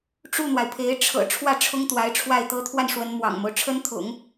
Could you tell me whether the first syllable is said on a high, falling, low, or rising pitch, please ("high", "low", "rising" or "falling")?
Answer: falling